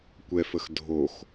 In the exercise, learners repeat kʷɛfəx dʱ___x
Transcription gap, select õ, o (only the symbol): o